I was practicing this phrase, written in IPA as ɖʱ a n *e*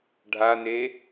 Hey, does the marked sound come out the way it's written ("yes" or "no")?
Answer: yes